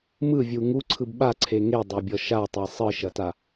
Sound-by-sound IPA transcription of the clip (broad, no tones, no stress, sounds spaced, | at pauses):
m ɯ vʲ u ŋ u ǀʰ ɯ b ɓ a ǀʰ e ŋ e dˤ ɑ bʲ ɔ ʃ a tˤ e sˤ ɯ ʃ ɐ t a